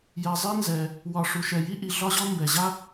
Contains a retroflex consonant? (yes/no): yes